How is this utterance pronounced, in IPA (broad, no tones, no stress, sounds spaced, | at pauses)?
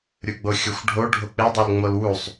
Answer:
ɾʲ u ɡ͡b o xʲ o xʷ ɖʱ o ɖʱ o k͡p e dˤ o l ŋ͡m o l w u sˤ